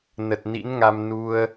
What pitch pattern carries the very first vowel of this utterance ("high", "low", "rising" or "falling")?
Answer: low